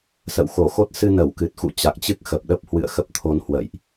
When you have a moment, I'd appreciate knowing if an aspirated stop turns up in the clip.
yes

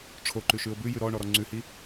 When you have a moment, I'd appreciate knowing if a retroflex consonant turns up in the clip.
yes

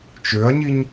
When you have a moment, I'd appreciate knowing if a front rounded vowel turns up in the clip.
yes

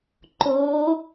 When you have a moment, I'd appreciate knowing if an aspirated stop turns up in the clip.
no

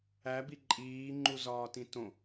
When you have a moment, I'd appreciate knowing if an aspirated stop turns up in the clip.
no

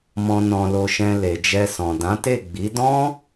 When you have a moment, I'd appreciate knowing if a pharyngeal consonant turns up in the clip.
no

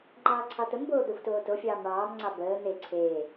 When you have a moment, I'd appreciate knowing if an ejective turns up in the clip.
no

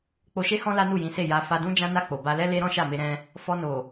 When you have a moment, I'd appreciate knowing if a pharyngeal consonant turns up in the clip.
no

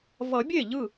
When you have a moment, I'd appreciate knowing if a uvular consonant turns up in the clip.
no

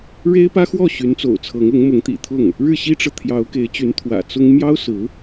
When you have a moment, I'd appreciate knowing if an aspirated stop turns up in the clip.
yes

